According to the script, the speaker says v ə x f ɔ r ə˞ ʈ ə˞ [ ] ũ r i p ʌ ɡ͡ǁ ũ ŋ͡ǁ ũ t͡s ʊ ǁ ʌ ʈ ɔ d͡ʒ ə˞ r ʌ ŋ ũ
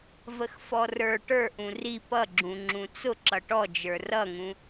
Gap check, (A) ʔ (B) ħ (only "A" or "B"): A